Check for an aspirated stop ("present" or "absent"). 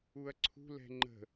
present